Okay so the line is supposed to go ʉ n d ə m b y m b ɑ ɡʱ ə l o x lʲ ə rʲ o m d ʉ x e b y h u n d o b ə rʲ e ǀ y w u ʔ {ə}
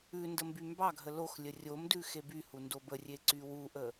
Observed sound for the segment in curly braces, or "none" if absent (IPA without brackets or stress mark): ə